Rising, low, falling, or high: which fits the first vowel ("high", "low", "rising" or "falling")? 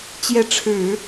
rising